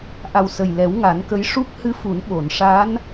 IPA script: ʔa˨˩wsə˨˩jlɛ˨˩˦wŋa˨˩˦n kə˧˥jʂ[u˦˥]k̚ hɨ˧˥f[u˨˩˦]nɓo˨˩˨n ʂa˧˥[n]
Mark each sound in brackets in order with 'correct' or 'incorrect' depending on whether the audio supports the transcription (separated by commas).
correct, correct, correct